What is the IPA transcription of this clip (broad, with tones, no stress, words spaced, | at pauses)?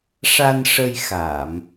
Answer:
ʂa˧nʂə˧jxa˨˩˨m